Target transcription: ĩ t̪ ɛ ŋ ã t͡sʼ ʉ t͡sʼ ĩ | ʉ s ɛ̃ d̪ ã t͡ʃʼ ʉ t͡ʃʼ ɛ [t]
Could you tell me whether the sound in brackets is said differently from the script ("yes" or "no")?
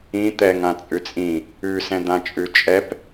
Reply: yes